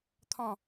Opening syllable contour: falling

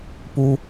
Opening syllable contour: high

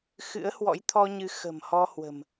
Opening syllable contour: rising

